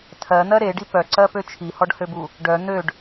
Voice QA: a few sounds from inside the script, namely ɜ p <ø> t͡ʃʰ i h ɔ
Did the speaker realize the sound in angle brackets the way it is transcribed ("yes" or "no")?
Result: yes